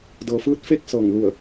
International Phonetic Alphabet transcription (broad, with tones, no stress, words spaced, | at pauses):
dɤː˩fɯː˧˥t̚fe˥˨k̚ sɤː˧˩ŋ lu˧˩ə̯